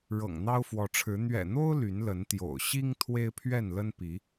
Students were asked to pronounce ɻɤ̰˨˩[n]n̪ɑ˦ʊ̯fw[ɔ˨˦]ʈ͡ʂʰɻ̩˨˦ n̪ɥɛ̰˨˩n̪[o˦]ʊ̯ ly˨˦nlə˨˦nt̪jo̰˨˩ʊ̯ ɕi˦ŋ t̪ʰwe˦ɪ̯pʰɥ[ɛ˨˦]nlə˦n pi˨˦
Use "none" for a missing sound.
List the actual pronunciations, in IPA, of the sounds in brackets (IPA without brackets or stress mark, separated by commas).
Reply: ŋ, ɔ˨˦, o˦, ɛ˥˨